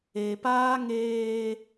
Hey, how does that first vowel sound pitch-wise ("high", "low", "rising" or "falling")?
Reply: low